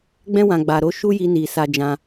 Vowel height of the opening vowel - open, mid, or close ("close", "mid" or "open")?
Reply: mid